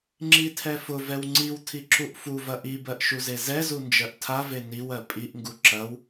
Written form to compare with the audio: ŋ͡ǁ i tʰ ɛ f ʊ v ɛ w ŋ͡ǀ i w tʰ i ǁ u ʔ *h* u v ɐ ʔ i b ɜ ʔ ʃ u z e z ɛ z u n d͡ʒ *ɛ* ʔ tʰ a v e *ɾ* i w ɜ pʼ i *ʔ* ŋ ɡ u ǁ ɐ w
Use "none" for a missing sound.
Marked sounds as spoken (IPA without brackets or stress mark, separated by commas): f, ɜ, n, ʔ